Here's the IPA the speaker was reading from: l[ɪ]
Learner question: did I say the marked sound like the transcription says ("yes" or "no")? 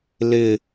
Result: yes